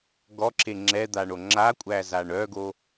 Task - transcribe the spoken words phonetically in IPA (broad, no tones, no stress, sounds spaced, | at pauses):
ɡ ɔ ǁ e ŋ͡ǁ ɛ d̪ a ɳ o ŋ͡ǁ a kʷʼ æ z a ɳ œ ɡ o